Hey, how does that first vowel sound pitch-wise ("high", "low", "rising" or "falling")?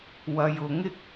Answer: low